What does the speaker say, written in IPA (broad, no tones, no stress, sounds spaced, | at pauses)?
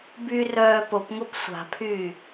b y r œː p o p ŋ o p sʷ a̤ pʰ yː